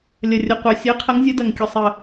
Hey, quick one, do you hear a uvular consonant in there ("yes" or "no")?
yes